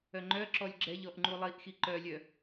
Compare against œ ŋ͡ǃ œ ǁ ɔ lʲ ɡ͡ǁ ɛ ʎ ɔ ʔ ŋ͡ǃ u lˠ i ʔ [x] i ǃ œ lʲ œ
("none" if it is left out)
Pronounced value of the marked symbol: x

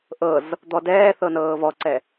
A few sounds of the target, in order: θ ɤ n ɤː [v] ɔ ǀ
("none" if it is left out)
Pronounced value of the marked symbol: v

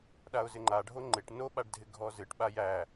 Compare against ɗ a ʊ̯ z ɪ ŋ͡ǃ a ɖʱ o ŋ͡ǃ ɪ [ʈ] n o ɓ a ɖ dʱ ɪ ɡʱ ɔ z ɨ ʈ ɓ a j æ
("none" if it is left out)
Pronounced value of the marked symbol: ʈ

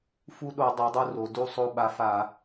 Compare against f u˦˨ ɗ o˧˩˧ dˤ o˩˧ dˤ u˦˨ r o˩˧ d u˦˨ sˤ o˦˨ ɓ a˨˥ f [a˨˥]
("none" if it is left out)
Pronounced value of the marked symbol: a˧˩˧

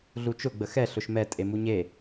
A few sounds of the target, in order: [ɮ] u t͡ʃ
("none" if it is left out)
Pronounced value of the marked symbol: ɮ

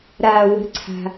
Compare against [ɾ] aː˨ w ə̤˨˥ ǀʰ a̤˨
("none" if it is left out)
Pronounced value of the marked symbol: ɾ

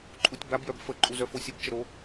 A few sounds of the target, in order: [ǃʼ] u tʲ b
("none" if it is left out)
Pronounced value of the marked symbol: ǃʼ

